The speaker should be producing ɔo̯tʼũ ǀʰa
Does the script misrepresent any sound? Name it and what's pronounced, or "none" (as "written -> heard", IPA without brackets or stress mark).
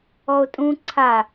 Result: none